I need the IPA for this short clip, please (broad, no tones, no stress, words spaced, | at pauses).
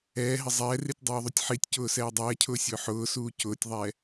ɛːɦɪ zˤɛːritʲdˤoːðˤutʲ ħitʲcʊːsɛː dˤɛːcʰʊːsʲʊː ħʊːsuː cʊːtʲðˤɛ